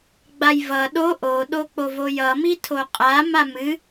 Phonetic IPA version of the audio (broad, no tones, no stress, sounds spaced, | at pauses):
ɡ͡b a j v ʌ ɗ o ʔ o ɗ o k͡p o v o j ʌ m i tʰ o qʼ a m a m ɨ